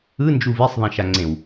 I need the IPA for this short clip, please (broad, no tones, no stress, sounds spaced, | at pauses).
ɯ n d͡ʒ u v i sˤ ðˤ ẽ ʃ a ŋ͡ǀ ẽ w